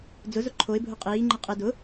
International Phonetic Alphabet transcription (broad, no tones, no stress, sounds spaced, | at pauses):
d͡z ʊ z ʊ ǃʰ o ɪ̯ bʱ ʊ qʼ iː ŋ͡ǃ ɪ qʼ ɪ d ʊ